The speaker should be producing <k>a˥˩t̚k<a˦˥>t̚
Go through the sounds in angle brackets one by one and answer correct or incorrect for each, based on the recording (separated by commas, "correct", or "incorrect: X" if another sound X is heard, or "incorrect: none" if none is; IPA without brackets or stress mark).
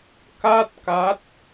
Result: correct, correct